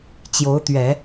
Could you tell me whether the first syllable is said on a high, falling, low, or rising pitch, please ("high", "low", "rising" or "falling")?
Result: rising